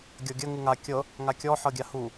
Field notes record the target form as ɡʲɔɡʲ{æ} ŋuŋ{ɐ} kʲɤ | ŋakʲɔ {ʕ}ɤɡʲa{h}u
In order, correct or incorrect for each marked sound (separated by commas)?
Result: incorrect, incorrect, incorrect, correct